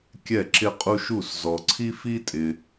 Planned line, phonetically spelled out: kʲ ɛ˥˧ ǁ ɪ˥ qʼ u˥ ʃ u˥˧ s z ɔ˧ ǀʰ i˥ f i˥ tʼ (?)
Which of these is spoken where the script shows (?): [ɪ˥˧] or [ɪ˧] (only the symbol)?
ɪ˧